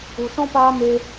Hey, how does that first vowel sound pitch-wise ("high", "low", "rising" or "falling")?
low